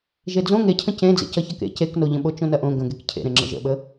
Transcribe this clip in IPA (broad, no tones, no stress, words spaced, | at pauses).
ʒed͡zõ ŋecʰə̃ cẽd͡zḛ cʌçɐkḛ ceknoʎə̃ɓo t͡ʃõnɐʔõ ɡə̃ɡek cʰḛɾẽ ŋ͡ǁə̰ʒə̰ɓə